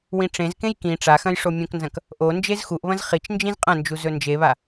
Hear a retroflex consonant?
yes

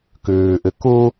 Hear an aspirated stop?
no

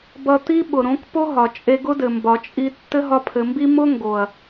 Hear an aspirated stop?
yes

